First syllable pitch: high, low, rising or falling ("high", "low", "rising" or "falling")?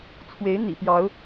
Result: rising